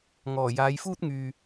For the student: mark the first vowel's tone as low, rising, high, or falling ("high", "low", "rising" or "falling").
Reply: low